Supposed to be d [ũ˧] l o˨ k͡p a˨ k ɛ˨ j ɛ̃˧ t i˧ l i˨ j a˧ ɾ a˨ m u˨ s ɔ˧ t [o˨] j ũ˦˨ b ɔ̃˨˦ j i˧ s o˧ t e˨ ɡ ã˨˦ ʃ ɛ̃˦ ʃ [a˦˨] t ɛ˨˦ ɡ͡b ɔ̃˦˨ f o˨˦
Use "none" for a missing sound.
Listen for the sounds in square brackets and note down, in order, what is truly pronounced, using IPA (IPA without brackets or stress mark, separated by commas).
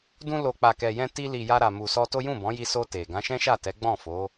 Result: ũ˧, o˦, a˦˨